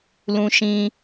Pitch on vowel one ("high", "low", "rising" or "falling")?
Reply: high